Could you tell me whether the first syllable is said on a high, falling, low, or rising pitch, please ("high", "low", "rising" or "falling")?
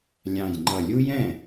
low